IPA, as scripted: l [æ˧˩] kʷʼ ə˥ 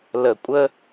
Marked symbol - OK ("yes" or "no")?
no